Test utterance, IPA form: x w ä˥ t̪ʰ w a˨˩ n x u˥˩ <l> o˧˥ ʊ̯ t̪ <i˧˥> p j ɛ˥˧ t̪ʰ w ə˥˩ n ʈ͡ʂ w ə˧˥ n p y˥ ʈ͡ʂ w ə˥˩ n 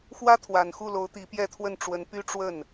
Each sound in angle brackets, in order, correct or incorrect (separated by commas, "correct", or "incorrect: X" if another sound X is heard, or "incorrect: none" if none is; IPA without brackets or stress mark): correct, correct